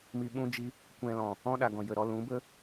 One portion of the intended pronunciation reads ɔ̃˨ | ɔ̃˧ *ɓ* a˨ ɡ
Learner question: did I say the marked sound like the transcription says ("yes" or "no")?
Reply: no